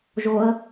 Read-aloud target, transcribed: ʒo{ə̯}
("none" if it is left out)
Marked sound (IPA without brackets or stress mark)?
ə̯